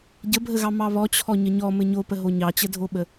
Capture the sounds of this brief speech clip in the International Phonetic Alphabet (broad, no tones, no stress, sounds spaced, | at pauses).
ɟ ə bʱ ə ɣ ɑ m ɑ β ɔ t͡ɕʰ ɔ ɲ ə ɲ ɔ m ɘ ɲ o p ə ɦ o ɲ ɑ t͡ɕ ə dʱ o ɓ ə